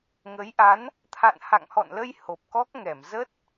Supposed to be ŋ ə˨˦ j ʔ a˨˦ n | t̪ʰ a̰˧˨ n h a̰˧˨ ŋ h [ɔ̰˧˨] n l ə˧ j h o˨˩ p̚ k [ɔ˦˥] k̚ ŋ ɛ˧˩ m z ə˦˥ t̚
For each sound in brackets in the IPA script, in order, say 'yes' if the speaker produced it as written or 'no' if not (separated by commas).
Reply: yes, yes